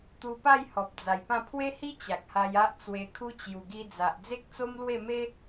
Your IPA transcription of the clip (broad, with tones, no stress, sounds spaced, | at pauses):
t̪ u˧ p a˥˧ j h ɔ˨ p̚ d͡z a˨˩ j p ã˥˧ pʰ w e˦ h i˦ t͡ɕ a˨ k̚ h a˧ j a˦ ʔ t͡s w e˧ kʰ u˦ t͡ɕ j u˨˩ ɡ i˧ d͡z a˨ ʔ d͡z e˦ k̚ t͡s o˦ m l w e˥˧ m e˦